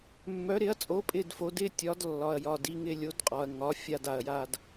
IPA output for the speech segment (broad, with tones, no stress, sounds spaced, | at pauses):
mː œ˨˥ ɾ ɪ˨˥ ɐ̯ t͡sʼ o˨˥ pʼ ɪ˥˧ d f o˨˥ d ɪ˥˧ tʲ ɒ˨˥ d lː ɒ˨ ɐ̯ j ɒ˨ d i˥˧ ŋ ɪ˥˧ lʲ o˨˥ d qʼ ɒ˨ ɐ̯ ŋ ɒ˨˥ fʲ a˥˧ d a˨ ɐ̯ j a˥˧ d